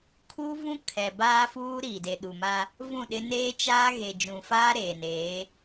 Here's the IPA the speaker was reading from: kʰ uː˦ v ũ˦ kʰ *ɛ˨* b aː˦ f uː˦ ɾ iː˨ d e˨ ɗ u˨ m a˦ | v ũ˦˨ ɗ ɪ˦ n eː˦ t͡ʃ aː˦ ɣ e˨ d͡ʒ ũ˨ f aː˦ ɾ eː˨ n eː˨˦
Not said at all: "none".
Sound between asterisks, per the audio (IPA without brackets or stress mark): ɛ˨